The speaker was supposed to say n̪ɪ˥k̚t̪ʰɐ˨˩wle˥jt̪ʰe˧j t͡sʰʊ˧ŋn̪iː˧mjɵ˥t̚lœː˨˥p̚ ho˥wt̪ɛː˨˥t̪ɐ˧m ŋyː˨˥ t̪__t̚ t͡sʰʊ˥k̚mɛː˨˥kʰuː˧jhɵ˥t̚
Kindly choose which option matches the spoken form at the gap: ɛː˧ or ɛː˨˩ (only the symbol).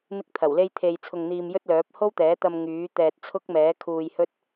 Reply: ɛː˧